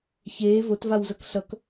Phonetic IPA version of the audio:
ç eː v o t v a w z ʌ k ɬ ʌ k

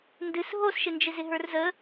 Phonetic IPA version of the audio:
n d ɨ s ɦ o s ʃ ɪ n d͡ʒ ɪ z ɪ ɦ ə˞ r z ə

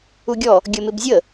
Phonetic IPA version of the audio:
u ɡʲ ɔ | ɡʲ ə m ɪ b zʲ ə

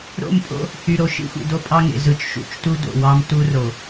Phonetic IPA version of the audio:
ɾ o̰˦˨ m pʼ o̰˦ | h y˨ ɾ o˨ ʃ ḭ˦ xʷ ḭ˨ d o˦ pʼ ɑ˦ ŋ ḛ˨ z ɯ˨ t͡ʃ ʃ ṵ˨˦ t͡ʃ t u˦ d o̰˨ w ɑ˦ m t u˦ r o˨

